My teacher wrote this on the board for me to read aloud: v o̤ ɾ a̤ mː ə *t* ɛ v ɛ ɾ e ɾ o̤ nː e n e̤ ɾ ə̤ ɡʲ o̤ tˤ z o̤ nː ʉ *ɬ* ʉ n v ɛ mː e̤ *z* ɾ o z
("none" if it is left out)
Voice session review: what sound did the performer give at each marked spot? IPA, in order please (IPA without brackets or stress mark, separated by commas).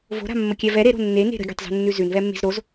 kʲ, z, z